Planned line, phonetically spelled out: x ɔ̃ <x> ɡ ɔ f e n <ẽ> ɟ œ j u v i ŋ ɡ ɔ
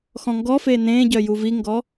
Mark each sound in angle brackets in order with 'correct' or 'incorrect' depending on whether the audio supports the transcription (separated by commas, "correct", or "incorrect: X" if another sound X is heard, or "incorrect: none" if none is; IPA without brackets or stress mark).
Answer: incorrect: ŋ, correct